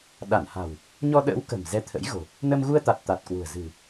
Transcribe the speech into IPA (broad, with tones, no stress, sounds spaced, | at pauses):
ɗ a˧˩ n h a̤˨˩ w | ɲ ɔ˧ ɗ ə̰ː˧˥ w k ə̤˨˩ m z ɛ˧ t̪ʰ ə̰˧˥ j ɣ o̤˨˩ | n ə˧ m ɣ u˧ ə̯ t̪ a˨˩ t̚ t̪ a˨˩ t̚ k w ṳ˨˩ ə̯ z ɨ̤˨˩